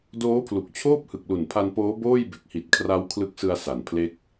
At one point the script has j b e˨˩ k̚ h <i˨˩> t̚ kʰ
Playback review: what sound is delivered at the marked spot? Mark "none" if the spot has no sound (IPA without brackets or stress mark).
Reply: i˨˩